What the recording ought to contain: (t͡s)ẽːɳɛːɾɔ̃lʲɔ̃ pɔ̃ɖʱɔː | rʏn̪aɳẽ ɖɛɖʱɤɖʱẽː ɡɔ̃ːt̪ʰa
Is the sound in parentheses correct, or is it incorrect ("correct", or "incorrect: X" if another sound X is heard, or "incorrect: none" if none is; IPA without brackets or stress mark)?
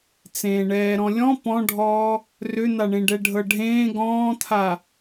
correct